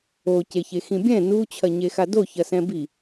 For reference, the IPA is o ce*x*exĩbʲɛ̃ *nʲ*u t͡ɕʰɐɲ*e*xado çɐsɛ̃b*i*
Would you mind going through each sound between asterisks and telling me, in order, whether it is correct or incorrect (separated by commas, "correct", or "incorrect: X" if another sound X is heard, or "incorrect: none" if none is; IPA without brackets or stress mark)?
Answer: incorrect: ç, incorrect: n, correct, correct